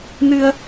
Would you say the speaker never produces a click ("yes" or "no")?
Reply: yes